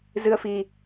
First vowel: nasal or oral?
oral